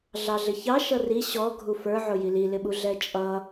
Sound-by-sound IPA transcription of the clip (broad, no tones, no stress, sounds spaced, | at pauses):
ɮ ɑ ɮ ɪ ç ɑ ʃ ʌ r i ɕ ɔ ɡʱ u f ə˞ ʕ ʊ j i l i l ɪ ɓ u ɮ ɛ t͡ʃʼ ʌ